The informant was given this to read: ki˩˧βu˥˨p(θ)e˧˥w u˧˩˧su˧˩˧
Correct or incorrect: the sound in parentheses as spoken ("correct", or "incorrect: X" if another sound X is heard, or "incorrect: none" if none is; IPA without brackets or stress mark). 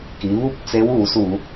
incorrect: t͡s